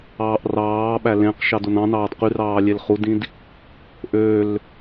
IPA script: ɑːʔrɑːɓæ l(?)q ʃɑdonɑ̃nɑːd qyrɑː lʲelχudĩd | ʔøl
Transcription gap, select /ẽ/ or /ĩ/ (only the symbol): ẽ